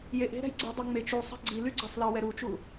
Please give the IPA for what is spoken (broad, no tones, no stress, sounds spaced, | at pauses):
j e ʔ e̤ ɾ ɛ̤ j ɡ͡ǀ ɯ dˤ ʌ ŋ͡m e t͡ʃ u sˤ ɛ̤ ɡ͡ǀ i l y ɡ͡ǀ ʌ sˤ l ɑ w ɛ ɾ u t͡ʃ u